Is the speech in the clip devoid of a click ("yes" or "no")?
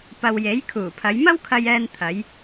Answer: yes